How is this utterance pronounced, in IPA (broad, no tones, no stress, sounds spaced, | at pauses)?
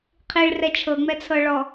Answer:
qʰ i ɭ r ɛ t͡ʃʰ ɤ ŋ͡m ɛ t͡sʰ ɤ ɭ ɔ